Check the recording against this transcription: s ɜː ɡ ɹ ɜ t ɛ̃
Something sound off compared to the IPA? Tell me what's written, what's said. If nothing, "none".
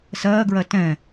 none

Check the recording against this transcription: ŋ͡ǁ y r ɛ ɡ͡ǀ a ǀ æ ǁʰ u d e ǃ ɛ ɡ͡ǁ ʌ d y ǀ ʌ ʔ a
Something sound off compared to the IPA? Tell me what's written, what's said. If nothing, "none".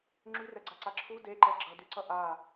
æ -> a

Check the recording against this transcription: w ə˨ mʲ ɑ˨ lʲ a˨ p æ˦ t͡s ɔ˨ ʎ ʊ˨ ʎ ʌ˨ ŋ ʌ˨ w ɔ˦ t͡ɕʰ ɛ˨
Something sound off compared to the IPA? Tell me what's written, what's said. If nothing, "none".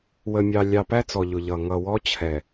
a˨ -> ɑ˨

